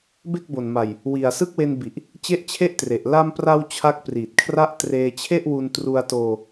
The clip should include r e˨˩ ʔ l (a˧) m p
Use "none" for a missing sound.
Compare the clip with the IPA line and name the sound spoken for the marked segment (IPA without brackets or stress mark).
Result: a˧